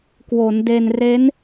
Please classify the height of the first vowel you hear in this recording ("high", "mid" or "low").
mid